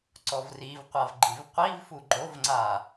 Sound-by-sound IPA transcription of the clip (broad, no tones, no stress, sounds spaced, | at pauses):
ǀ ɔ v r i v qʷ a v ɡ͡ǃ i v qʷ i v f u ɡ͡ǃ o v ŋ͡ǀ a